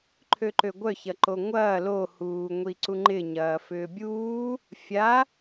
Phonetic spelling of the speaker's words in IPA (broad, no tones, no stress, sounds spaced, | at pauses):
ǃʰ ø ǃ ø ɡʷ œ ç ɐ ǃ o ŋʷ ɐː l o h uː ŋʷ i ǀ u ŋ͡ǃ ɪ ɲ ɐː f ʏː bʲ uː | fʲ a